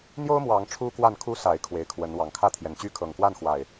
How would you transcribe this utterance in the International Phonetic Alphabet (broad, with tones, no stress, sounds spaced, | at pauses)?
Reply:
n̪ j o˦ ʊ̯ m w ɑ˨˦ ŋ ʈ͡ʂʰ u˦ k w a˥˨ n kʰ u˦ s a˨˦ ɪ̯ kʰ w e˨˦ ɪ̯ kʰ w ə˨˦ n w ɑ˨˩ ŋ kʰ ä˥˨ t̪ʰ j ɛ˨˩ n t͡ɕ y˦ kʰ ɤ˨˩ ŋ k w a˥˨ n x w a˨˩ ɪ̯